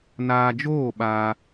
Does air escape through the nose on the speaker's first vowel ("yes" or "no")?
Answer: no